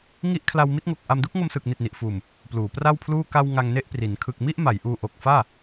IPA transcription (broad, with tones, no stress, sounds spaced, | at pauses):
ŋ i˥˩ ʔ kʰ l a˧ w m i˦˥ t̚ ŋ o˨˩ k̚ ʔ a˧ m d u˦˥ k̚ ŋ o˧ m s ɯː˨˩ k̚ n i˨˩ t̚ n i˨˩ ʔ f uː˨˩ m | p l uː˩˦ p r a˥˩ w pʰ l uː˥˩ k a˧ w ŋ a˧ ŋ n e˥˩ ʔ p r i˩˦ n kʰ ɯ˨˩ k̚ m i˥˩ ʔ m a˩˦ j ʔ uː˧ ʔ o˨˩ k̚ f aː˥˩